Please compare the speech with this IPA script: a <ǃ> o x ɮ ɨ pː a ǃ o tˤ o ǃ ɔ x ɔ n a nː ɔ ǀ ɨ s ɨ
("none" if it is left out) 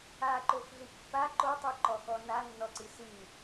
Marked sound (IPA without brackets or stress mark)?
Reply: ǃ